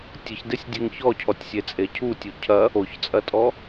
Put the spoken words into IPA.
tʲəçdesʲdʲeŋ çɔcʰɔtʲsʲet͡sʼe cʰutʲu cʰɐ | oçt͡sʼɐtʼɔ

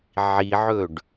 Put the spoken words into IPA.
ʕiʕɵɖ

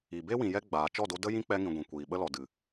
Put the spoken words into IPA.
i˨be˦ wĩ˨jɛ˧ ɡ͡baː˨ t͡ʃɔ˦˨do˧ də˦jĩ˦k͡pɛ˧ŋĩ˨ ɡʷĩ˨kʷiː˨ɓə˦lɔ˨ dɨ˨

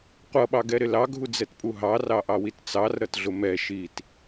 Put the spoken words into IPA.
qʷʌɓɑɡɛɾɪ lɑɡʱud͡zɛtpʼu ɦɑrɑʔɑwit t͡sɑrɾʌtɮʊ mɛ ʃit

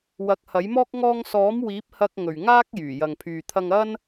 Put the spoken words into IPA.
wɐ˨˥k̚hɐ˨˥jmɔː˥k̚ ŋɔː˧ŋsɔː˨˥m wiː˨˥p̚hɐ˧k̚ŋɵ˨˩ɥŋaː˥k̚ jyː˨˩ jɐ˨ŋpʰyː˨t̪ʰɐ˧ŋɐ˥n

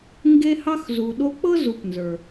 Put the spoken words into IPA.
ŋɡe˦ hɑ˦xzu˨ɗo˦k͡pɤ˥ zu˨pnzə˞˩

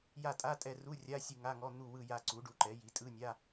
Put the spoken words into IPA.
ja˦˨tʼa˧˥˧tʼɛ˦˨ru˧˥˧ rʲa˧˥˧sʲɯ˦˨ŋa˧˥˧ŋɔ˧˥˧ n̪u˦˨wɯ˦˨ ja˦˨ǀu˩˥ɖu˩˥ǃɛ˩˥ ji˩˥tʼɯ˧˥˧nʲa˧˥˧

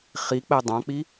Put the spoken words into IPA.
χik͡pɛ dˤãk͡pi

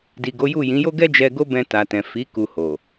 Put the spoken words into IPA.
di˨ɡo˨˦ju˦˨ jĩ˨˦jo˦ ɡɛ˦ d͡ʒɛ˧ɡo˦bɛ̃˧ ta˨tɛ̃˨ fi˨˦ ku˧ho˨

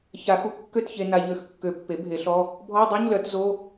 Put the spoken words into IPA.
ça˨˩˦xu˩˥ kːø˥˨tçe˧ na˧ʎø˧˥˧x kːø˨˩˦pːe˩˥ bʱe˩˥ɬɔ˧˥˧ | bʱɔ˧˥˧dˤo˧˥˧ɲlœ˨˩˦t zo˧˥˧

